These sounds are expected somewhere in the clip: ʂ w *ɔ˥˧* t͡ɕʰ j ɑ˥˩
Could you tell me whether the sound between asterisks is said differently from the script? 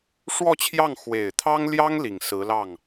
no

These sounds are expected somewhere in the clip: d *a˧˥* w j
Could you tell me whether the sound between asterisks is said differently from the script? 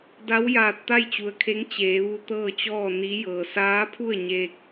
no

